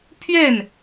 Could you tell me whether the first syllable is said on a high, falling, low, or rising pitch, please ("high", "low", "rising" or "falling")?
falling